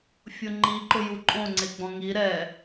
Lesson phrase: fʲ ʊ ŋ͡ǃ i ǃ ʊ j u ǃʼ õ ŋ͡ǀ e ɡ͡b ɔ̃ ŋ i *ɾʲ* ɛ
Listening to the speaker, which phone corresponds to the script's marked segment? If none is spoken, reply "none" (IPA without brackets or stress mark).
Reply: ɾ